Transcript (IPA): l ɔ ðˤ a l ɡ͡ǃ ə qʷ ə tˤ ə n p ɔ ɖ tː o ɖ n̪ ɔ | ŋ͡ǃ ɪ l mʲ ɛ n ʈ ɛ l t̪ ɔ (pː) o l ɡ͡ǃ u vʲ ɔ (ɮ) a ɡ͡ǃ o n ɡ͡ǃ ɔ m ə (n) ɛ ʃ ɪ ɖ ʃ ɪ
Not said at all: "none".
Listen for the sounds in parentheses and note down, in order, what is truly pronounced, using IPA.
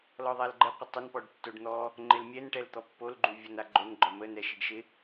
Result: pː, n, n

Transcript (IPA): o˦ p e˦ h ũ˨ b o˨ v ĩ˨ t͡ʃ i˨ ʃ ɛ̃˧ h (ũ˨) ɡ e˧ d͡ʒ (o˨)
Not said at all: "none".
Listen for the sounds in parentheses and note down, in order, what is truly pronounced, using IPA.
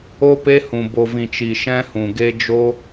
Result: ũ˨, o˦

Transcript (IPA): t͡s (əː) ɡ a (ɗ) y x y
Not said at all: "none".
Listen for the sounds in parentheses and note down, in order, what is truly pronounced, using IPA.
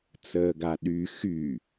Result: əː, ɗ

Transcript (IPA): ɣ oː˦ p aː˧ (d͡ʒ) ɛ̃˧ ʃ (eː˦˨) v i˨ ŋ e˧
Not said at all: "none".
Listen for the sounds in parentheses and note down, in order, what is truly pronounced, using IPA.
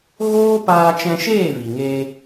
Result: t͡ʃ, eː˦˨

